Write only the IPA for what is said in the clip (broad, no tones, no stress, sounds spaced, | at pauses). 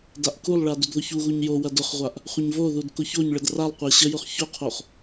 d a ʔ k u lˠ ɭ a d u d ð ʊ ç u ɣ u ɲ j o w ɐ d ʊ χ ʁʷ a ʔ | χʷ ə ɲ v o ð u d k ʊ ç o ɲ ɭ ə d r a lˠ qʷ a ɕ ə j ʊ χ ç ʊ qʰ o χ